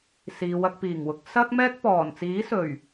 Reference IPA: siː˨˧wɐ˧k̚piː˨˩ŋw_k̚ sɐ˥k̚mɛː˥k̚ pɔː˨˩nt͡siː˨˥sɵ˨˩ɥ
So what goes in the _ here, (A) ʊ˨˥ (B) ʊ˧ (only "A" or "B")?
A